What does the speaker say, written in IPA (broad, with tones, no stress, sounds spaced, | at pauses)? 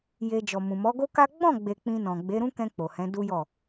j e˧ d͡ʒ ɔ˨ m ũ˨ m ɔ˨˦ ɡ o˦ k a˦ ɡ͡b ɔ̃˦˨ ɡ͡b e˨ k͡p ĩ˧ n ɔ̃˨ ɡ͡b e˨˦ ɾ ũ˦ k ɛ̃˧ k͡p o˨ h ɛ̃˨˦ d u˦ j ɔ˦˨